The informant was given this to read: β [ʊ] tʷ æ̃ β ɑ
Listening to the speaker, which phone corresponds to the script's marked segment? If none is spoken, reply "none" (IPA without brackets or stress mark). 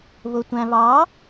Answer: ʊ